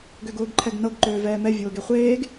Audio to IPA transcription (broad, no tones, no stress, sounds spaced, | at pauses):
ɡ ø ɡ ʊː ɡ ǃʰ ɛ ɡ n ɤ ɡ ǃ øː v ɛː m ɛ vʲ ʊː ɡ e χʷ eː ɡ